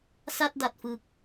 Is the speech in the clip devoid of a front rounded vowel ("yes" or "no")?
yes